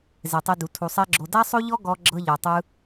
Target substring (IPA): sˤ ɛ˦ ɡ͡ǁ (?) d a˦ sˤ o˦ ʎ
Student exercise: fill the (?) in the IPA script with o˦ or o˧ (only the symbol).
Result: o˧